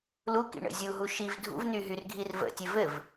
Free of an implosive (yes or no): yes